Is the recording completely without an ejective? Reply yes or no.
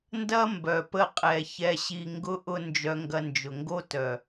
no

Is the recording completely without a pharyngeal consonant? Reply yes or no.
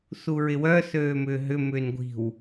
yes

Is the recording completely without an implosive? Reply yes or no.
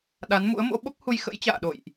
no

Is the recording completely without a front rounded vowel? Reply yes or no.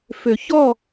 no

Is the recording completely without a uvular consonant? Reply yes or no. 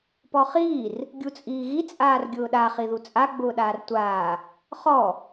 no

